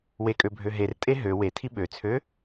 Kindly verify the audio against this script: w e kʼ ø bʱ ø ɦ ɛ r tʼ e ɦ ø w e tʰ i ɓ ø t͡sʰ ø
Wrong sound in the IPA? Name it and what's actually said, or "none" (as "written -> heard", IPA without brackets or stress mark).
ɛ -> e